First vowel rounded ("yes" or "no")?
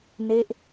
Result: no